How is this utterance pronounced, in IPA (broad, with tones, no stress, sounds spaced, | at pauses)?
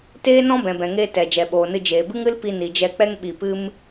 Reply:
t eː˦ n ɔ̃˦ b ɛ̃˨ b ɛ̃˨ ŋ eː˧ t ɛ˨ d͡ʒ ɛ˨ ɓ oː˨ n ɨ˧ d͡ʒ eː˨ b ɨ˦ ŋ ɨ˦ l p i˧ n i˨ d͡ʒ ɛ˧ k͡p ɛ˦ ŋ ɓ i˧ p ɨ˦ m